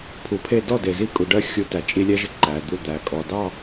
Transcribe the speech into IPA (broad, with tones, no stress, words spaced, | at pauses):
pʰu˨pʰe˦˨ dɔ˦˨de˨zi˦kʼu˨ ɖɜ˦ xʲu˦tæ˨ t͡ʃʼi˦lʲɛ˦ʒɪ˦ ǃæ˨d̪u˦˨ d̪æ˨kʼɔ˨dɑ˦˨